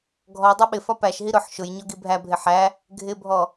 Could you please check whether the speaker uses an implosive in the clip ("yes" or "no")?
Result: yes